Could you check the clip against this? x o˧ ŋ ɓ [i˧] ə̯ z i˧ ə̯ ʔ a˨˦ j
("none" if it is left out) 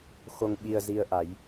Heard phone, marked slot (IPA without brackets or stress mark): i˧